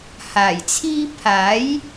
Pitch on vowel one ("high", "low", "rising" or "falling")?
low